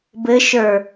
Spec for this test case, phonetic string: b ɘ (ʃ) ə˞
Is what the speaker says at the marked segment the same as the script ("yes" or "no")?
yes